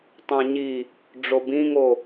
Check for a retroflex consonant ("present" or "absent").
present